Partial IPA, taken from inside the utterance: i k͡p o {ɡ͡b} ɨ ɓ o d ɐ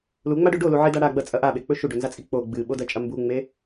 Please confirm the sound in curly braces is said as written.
yes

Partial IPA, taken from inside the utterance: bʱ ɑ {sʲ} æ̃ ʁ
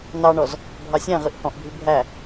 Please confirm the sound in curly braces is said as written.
yes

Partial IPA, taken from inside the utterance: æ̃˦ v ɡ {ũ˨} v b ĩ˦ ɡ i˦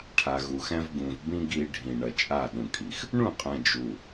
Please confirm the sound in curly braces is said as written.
yes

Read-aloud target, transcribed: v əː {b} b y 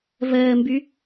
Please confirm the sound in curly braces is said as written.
no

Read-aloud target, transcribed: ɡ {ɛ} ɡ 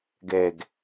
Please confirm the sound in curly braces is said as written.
yes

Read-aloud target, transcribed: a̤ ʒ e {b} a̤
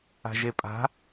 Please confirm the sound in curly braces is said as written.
no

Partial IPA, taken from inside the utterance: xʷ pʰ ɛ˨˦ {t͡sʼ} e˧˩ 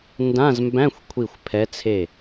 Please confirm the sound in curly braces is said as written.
no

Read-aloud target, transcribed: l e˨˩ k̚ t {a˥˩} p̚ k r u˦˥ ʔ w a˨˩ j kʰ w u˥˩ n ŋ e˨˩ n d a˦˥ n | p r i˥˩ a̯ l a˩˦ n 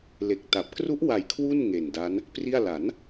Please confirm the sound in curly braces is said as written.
no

